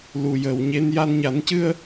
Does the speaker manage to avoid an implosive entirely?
yes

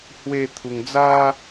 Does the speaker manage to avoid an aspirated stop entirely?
no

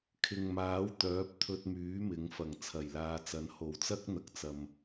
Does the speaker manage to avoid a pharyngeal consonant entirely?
yes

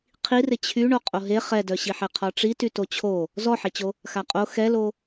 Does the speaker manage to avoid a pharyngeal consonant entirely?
no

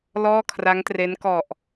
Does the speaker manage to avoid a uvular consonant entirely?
yes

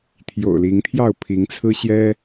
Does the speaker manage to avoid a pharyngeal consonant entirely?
yes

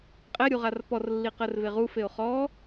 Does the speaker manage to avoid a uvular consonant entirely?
no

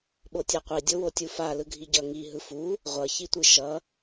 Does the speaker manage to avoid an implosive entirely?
no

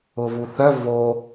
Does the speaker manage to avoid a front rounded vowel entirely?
no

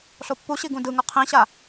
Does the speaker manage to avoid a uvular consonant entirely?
no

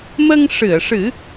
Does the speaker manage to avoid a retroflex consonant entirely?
no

